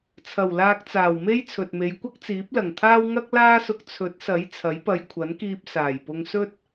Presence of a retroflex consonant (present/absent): absent